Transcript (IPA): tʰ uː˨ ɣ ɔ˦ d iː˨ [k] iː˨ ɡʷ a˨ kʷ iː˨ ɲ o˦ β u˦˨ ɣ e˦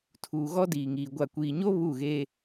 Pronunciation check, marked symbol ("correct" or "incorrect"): incorrect